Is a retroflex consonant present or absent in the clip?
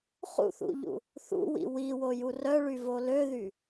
present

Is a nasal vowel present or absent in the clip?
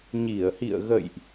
absent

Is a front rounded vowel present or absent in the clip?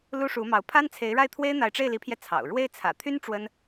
present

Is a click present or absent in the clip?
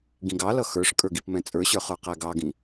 absent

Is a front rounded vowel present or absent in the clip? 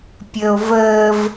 absent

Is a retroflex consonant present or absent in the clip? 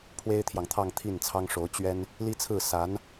present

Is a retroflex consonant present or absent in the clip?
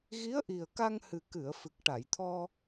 present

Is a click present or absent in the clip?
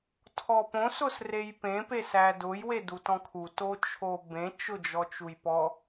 absent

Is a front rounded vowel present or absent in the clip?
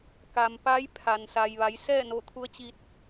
absent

